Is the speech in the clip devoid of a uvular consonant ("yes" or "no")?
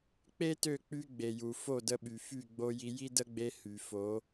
yes